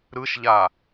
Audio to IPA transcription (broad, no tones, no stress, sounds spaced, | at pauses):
ɾ ɯ ʃ ʎ a